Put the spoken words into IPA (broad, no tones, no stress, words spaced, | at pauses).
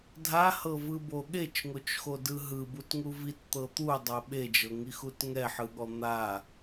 dʱahɤvɯbo ɠet͡ʃŋot͡ʃxodɯ ɦɯbutŋu vitt̪ɤ t̪udˤo ɓed͡ʒɤŋixut ŋɛħɯɠɔ n̪a